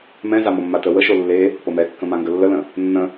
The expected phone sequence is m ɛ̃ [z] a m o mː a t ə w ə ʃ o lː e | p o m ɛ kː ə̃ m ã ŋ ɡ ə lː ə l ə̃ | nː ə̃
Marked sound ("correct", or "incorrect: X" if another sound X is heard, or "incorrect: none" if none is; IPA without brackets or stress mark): correct